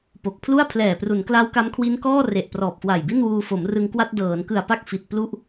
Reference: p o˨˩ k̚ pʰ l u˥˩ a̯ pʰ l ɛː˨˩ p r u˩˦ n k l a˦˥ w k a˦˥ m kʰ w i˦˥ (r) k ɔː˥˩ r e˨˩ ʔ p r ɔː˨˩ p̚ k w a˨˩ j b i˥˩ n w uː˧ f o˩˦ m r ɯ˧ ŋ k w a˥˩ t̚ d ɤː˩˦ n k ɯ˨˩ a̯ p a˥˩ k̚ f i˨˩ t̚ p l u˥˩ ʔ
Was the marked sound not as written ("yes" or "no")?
yes